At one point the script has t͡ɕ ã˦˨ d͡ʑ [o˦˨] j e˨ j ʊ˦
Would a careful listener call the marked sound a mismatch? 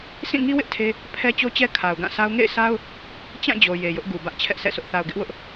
yes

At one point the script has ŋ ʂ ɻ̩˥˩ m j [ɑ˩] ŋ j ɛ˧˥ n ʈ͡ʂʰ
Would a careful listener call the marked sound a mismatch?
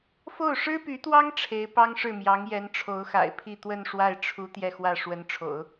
yes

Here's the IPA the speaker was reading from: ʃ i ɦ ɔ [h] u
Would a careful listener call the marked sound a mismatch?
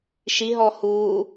no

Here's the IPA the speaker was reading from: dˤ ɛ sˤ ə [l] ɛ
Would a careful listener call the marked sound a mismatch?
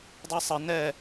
yes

